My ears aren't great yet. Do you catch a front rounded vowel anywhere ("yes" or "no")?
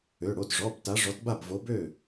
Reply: yes